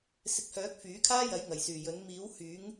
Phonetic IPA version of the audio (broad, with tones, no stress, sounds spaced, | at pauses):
s ɪ˨˥ k̚ h œː˨˥ k̚ f yː˨˥ kʰ aː˥ j ɐ˨˥ j ŋ ɐ˨˩ j s yː˨˩ j ɵ˨˥ n m iː˨˥ w h yː˨˥ ŋ